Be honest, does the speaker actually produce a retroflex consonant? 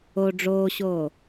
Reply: yes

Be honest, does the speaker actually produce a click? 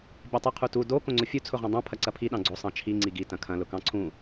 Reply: yes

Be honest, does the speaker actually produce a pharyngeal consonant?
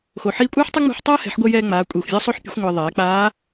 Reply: yes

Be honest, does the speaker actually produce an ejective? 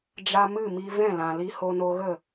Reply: no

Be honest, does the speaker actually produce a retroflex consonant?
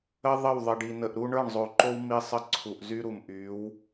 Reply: yes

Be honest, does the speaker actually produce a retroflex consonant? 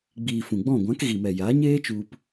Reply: no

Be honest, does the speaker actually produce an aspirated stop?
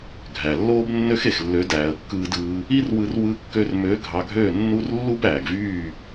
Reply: no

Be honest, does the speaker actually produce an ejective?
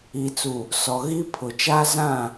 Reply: no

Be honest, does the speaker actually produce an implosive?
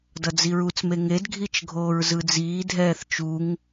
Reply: no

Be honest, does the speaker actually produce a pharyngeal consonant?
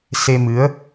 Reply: no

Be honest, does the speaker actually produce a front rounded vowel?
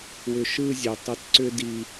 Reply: yes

